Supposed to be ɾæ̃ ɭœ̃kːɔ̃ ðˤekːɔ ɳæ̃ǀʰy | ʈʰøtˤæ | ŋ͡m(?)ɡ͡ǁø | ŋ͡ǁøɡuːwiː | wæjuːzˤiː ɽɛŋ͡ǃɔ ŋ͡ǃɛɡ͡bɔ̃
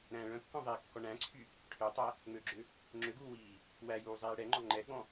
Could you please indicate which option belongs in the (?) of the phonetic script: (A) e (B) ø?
B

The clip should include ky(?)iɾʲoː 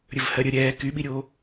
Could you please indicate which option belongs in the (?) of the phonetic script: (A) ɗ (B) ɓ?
B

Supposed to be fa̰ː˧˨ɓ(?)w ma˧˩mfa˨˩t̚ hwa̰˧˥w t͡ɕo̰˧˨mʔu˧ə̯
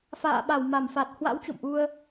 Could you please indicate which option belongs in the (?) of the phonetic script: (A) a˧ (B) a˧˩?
B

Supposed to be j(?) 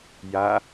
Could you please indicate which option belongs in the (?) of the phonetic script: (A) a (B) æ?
A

